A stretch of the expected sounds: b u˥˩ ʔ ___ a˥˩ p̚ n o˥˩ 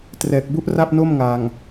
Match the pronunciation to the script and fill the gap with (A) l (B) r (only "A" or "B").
B